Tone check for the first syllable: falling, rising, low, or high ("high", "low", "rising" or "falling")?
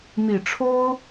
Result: low